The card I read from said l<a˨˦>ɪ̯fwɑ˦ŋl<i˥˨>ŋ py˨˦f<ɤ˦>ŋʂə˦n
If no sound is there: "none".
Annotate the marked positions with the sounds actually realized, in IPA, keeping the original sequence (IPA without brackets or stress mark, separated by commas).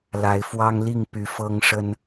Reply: a˨˦, i˥˨, ɤ˦